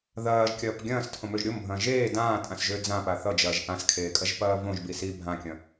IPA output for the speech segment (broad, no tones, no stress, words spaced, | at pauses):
ðɐːʒkʲɐːp ɡʲɐ̃ːstʰõmøʒ ɾʲombʱɐ̃ː ʒeː dãːtʼãsʒø d͡zãpa θʌd͡ʒɐːʒ ʔãskʰeːkʼɐʒpɐː võʒbi si bʱãkʲɐ̃